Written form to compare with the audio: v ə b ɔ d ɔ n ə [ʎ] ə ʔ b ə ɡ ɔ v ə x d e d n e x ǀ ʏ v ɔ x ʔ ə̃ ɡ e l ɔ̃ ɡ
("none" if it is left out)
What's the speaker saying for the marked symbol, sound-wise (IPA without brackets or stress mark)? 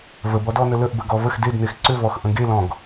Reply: l